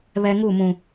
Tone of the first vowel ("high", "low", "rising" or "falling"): high